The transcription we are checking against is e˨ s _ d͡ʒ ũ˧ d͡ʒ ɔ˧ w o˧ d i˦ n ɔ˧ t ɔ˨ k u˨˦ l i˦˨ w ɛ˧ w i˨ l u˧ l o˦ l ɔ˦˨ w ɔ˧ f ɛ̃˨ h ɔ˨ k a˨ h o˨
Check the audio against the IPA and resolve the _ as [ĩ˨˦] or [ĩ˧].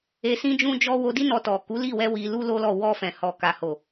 ĩ˧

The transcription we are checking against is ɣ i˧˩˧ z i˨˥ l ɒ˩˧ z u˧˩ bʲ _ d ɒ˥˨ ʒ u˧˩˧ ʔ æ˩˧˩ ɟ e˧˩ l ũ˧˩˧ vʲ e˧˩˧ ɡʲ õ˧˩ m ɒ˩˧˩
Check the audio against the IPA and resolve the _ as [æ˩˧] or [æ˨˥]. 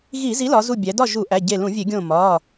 æ˩˧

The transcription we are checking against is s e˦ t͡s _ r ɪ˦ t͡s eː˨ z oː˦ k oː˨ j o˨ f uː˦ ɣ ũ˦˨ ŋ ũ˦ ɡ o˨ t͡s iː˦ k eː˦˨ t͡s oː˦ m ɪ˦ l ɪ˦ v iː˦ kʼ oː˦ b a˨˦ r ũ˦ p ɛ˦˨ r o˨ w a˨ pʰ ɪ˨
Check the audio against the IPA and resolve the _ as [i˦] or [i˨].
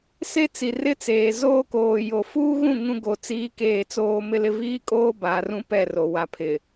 i˨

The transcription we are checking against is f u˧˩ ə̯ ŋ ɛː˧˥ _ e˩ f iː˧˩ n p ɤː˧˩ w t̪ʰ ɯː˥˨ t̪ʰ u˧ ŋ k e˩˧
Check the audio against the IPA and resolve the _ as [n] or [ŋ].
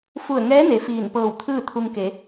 n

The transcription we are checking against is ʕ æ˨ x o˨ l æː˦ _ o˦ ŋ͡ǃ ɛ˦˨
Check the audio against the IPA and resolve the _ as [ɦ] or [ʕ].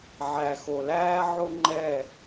ʕ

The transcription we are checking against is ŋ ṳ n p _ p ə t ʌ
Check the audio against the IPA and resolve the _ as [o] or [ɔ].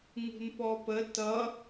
ɔ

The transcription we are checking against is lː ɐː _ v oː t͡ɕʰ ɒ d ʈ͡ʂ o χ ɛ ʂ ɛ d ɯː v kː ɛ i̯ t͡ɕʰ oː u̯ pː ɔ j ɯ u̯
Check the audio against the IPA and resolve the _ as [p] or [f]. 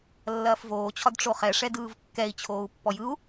f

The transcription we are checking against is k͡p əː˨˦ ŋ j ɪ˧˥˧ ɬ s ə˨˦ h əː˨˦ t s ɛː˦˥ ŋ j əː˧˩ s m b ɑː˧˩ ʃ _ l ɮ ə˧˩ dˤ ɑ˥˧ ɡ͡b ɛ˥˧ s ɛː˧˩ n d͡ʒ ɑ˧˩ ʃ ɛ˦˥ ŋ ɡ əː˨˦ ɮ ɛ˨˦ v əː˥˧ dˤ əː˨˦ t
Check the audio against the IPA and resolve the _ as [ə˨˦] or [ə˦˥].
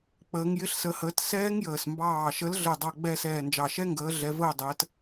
ə˨˦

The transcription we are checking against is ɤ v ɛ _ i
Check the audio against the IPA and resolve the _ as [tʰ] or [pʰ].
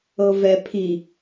pʰ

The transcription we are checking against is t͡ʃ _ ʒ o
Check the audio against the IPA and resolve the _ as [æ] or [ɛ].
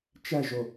æ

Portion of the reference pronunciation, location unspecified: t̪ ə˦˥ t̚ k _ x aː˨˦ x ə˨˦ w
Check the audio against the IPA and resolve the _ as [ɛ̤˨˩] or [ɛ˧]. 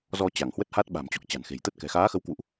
ɛ̤˨˩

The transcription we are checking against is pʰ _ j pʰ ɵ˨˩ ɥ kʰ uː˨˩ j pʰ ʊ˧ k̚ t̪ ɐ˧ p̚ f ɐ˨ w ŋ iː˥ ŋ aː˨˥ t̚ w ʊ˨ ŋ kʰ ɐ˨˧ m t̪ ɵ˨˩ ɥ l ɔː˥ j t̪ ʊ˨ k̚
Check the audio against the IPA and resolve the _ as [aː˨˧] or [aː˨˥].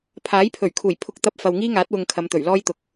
aː˨˥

